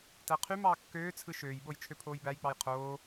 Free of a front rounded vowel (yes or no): no